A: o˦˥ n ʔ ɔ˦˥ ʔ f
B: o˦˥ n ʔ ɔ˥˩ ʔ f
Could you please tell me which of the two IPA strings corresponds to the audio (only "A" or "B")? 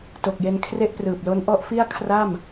A